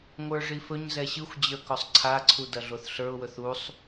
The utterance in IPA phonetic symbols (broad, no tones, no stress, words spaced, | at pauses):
ŋʷə˞ʐifɵɲzɛ ɕɯxʷd͡ʑə˞ kɔsˤǀʰaǀʰu dɐɮoθɬə˞ʊ̯wɵθ usˤ